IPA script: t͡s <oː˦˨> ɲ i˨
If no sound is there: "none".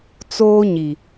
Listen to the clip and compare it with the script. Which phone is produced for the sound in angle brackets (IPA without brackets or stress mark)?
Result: oː˦